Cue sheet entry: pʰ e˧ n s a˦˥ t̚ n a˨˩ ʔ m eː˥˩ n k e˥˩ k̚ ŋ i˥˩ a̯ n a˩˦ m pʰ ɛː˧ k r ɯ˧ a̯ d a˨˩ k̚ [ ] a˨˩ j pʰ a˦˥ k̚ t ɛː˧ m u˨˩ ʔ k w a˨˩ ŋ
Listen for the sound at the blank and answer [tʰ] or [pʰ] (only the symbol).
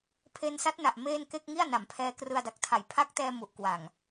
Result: tʰ